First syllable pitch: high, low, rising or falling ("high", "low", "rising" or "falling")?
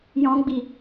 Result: high